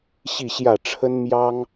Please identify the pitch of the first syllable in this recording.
falling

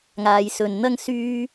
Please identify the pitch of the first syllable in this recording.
low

